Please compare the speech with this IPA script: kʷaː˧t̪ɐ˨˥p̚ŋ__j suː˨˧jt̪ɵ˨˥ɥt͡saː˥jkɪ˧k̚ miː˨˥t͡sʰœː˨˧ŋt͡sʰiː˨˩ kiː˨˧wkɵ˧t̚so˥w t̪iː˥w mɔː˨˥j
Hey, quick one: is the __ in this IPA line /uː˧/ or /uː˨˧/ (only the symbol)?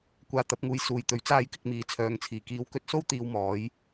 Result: uː˧